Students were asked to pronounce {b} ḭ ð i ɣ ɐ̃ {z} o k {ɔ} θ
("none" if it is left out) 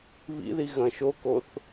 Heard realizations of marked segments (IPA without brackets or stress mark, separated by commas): β, ʃ, o